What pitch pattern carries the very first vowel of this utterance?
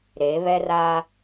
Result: rising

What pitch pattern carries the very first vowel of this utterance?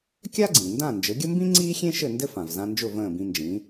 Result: high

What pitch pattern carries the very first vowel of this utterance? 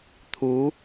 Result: rising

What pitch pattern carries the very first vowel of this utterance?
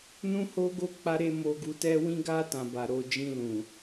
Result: high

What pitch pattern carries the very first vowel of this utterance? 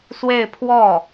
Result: falling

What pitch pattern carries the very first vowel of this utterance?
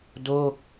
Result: falling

